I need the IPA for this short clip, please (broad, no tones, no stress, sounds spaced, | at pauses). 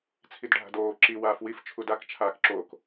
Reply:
t͡sʰ i d ɖʱ a̤ d oː ǁ i w aː f w i f t͡ʃʰ u d a k t͡ʃʰ aː k ǁ o k